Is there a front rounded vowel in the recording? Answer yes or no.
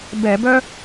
yes